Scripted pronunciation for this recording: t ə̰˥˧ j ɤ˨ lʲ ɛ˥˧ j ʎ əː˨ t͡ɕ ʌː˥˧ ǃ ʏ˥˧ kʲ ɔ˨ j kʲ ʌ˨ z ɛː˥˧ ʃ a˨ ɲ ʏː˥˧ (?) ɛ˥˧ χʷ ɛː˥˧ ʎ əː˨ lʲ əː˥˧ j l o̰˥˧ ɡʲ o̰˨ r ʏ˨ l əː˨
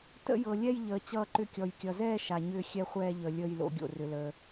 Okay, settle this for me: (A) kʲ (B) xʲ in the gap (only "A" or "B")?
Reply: B